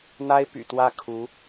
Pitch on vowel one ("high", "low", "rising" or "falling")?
high